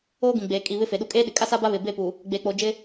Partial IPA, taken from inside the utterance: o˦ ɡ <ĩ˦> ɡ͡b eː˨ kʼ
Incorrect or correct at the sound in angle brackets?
incorrect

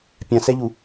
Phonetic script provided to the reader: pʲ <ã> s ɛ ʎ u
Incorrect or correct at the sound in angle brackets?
correct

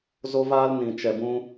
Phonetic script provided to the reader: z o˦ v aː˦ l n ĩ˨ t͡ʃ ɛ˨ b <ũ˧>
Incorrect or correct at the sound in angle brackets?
correct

